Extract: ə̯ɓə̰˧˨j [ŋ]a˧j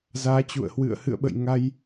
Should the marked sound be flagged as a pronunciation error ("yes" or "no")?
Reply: no